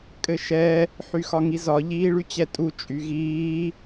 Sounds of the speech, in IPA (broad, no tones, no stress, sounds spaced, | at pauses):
kʼ ɘ ʃ ɛ | ħ y x ɒ ŋ i z ɒ ʎ iː ɭ y t͡ɕ ɛ tʼ u t͡ʃʼ y ɣ iː